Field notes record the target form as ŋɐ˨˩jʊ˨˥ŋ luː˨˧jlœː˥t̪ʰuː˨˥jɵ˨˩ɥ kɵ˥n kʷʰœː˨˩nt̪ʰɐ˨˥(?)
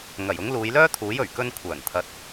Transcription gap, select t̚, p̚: t̚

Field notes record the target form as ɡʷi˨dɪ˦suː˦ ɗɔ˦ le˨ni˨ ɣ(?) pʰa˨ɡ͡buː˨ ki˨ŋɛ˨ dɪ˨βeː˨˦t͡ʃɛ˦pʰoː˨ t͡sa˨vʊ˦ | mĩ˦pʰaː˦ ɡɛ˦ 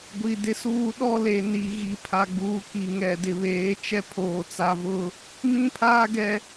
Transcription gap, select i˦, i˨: i˨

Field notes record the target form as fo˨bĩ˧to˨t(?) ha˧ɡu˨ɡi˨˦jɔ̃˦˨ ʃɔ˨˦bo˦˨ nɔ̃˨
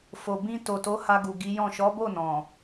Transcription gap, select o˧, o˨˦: o˨˦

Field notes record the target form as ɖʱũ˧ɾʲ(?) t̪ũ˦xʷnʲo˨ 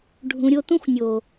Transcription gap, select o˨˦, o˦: o˦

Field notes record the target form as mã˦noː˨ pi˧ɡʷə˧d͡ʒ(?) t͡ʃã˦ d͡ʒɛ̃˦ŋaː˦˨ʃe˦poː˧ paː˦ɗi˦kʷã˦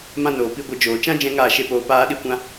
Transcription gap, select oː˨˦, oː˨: oː˨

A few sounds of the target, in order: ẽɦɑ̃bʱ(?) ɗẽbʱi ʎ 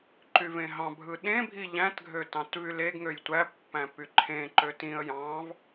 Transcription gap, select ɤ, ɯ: ɯ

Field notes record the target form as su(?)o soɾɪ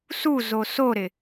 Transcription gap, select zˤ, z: z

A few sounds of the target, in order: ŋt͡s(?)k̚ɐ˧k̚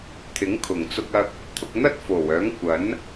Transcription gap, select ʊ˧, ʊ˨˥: ʊ˧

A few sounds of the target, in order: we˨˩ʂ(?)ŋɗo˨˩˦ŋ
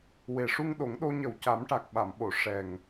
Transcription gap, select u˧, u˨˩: u˧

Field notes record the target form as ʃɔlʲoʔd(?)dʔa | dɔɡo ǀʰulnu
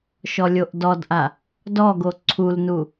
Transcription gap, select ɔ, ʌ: ɔ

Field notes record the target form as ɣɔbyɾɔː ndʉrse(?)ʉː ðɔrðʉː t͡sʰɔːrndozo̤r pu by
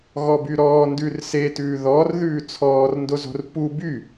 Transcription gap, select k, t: t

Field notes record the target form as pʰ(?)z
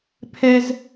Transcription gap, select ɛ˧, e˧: ɛ˧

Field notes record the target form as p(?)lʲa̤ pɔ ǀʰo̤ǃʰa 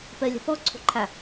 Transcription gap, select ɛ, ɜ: ɜ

